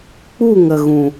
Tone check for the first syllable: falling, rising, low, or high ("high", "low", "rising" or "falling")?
falling